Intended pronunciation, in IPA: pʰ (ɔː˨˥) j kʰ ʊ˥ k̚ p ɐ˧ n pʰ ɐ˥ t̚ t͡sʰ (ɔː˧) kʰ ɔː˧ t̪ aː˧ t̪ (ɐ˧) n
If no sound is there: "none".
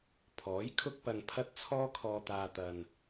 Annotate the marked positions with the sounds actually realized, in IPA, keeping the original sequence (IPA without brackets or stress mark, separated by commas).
ɔː˨˥, ɔː˥, ɐ˧